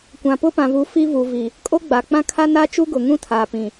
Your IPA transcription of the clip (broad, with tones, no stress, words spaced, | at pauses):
kʷã˨pʊ˦pã˨vu˨˦ fi˦vu˨ vi˨ | kʼo˦ɡ͡baː˨k͡pã˦ kʰa˦na˦ t͡ʃu˦ɡʊ˨ŋũ˦ tʰaː˨pĩ˨